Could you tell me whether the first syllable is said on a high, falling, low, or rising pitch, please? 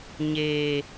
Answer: low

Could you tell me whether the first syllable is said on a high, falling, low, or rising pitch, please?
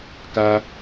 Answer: high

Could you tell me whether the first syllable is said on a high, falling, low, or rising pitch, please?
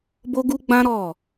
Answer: high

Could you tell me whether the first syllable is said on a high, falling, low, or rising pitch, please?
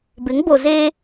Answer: rising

